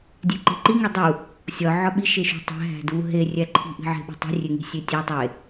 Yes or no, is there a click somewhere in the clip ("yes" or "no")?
yes